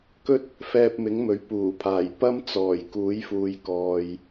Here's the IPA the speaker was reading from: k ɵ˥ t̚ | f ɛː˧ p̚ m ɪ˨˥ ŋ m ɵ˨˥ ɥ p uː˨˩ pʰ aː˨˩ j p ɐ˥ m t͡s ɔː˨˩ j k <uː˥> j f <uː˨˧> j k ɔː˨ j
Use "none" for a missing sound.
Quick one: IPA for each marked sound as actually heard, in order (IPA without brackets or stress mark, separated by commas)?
uː˨˥, uː˨